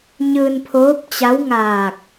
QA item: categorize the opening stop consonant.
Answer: aspirated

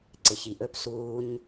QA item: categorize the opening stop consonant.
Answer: click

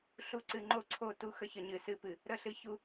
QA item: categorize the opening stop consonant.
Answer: click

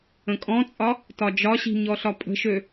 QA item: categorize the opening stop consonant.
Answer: ejective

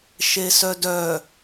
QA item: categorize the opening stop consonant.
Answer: plain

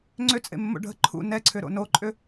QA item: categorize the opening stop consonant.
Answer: click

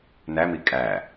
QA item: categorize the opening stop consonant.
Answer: ejective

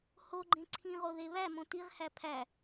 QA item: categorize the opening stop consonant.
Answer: click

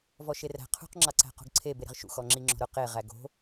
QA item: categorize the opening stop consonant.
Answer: aspirated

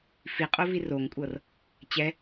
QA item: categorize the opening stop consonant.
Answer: ejective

